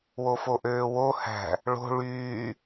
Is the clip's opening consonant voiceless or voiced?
voiced